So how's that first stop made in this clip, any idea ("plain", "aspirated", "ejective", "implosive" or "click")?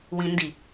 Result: plain